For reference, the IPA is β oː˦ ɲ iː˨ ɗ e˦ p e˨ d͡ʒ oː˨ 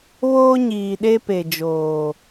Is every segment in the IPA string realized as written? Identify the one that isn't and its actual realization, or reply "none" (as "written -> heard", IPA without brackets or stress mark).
none